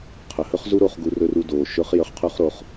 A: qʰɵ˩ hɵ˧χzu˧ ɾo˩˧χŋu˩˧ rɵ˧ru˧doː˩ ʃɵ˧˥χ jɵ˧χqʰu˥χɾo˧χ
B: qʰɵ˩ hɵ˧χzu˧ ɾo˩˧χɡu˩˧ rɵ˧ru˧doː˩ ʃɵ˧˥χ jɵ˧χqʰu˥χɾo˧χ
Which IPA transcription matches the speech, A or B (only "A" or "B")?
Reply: B